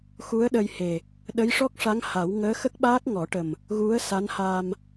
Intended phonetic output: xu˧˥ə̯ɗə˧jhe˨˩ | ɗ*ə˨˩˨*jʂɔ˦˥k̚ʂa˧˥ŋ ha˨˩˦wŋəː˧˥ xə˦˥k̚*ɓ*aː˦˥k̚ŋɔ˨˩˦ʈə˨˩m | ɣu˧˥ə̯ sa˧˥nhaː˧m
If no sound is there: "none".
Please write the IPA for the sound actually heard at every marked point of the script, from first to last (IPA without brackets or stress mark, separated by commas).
ə˧˥, ɓ